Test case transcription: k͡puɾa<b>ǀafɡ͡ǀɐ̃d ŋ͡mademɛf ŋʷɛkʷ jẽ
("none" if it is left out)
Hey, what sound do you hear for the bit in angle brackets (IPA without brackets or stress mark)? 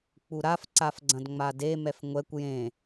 f